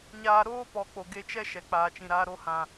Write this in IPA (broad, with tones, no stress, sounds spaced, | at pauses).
ɲ aː˧ ɾ oː˦ p ɔ˨ k͡p o˨ ɡ e˧ t͡ʃ ɛ˦ ʃ ɛ˨ k͡p aː˨ t͡ʃ ĩ˨ ɾ aː˧ ɾ o˧ h ã˨